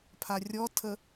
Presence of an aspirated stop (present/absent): present